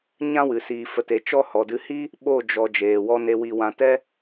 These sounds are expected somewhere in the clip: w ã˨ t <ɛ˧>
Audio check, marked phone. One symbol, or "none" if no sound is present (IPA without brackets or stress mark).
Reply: ɛ˧